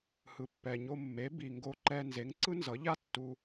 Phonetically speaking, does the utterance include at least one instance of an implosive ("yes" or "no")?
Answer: no